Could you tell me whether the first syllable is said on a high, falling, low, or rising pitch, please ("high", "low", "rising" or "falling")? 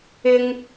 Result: high